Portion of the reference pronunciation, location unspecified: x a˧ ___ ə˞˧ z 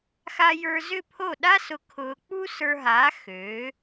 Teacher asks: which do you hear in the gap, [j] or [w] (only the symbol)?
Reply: j